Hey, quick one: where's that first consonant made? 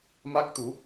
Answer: lips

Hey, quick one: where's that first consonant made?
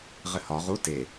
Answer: uvula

